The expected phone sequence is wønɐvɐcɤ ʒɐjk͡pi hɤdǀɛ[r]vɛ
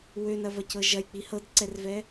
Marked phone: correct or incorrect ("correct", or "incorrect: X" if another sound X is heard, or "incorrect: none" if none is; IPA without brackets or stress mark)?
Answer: correct